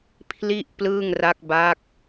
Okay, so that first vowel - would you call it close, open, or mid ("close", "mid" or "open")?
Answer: close